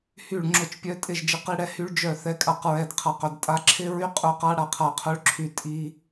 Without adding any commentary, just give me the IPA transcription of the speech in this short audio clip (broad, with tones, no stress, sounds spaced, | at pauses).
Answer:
h y˧˩ ɭ ŋ͡ǁ ʊ˧˩ t͡ʃ pʲ œ˧ tʼ ɪ˧˩ ʒ d͡ʒ ɪ˧ q i˧ ɽ ɛ˧ h y˧ ɭ d͡ʒ œ˧˩ θ ɛ˧ kʼ a˧˩ q ɹ ɛ˧˩ d qʰ a˧˩ q œ˧˩ d tʼ a˧ ǁʰ ɪ˧ ɹ y˧ qʼ ʊ˧˩ q a˧ ɽ a˧ qʰ a˧˩ qʰ œ˧ ɭ ǁʰ y˧˩ tʼ i˧